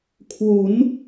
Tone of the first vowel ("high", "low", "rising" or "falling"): rising